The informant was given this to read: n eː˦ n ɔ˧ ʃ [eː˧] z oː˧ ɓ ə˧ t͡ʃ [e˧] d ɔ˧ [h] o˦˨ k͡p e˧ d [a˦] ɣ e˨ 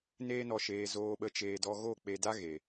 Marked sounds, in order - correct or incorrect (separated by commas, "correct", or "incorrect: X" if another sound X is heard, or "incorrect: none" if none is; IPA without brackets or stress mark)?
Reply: correct, incorrect: eː˧, incorrect: ɣ, correct